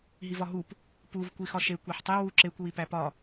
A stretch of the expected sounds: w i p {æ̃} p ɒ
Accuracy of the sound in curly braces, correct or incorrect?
incorrect